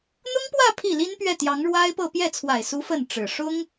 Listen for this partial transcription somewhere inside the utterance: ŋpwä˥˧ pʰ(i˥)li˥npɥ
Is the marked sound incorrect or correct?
incorrect